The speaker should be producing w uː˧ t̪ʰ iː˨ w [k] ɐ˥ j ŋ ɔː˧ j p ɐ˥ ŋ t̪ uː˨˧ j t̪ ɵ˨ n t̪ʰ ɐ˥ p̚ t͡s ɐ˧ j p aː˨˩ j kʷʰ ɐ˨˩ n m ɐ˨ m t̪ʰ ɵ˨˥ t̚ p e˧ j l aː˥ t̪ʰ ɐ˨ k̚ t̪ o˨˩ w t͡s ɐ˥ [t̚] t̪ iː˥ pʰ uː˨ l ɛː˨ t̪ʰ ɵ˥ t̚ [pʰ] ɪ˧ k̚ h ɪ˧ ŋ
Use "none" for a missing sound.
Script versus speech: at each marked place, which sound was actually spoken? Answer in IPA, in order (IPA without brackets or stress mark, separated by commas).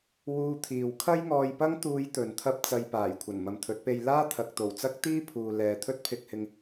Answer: kʰ, k̚, pʰ